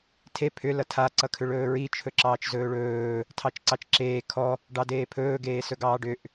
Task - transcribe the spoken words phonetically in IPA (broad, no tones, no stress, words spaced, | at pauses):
tʰe pʰʏ lʌtʰa ǀʌkʰʏɭɵːɹi t͡ʃʰɵǁɑːt͡ʃzɵːɭɵː | tʰɑt͡ʃǀɑt͡ʃǁeː kʰɔ | ɖɑdeːpʰɵː ɡeːsɵɡɑːɖʏʔ